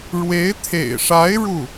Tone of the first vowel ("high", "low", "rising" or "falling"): rising